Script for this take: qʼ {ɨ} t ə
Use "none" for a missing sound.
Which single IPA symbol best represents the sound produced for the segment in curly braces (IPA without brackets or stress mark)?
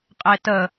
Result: e